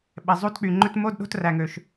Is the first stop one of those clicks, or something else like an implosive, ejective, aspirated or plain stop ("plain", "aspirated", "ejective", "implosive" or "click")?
implosive